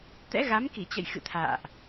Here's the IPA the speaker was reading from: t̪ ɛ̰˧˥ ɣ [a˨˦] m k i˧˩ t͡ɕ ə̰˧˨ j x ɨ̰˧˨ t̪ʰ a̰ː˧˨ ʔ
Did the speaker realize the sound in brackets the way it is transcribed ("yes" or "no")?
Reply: yes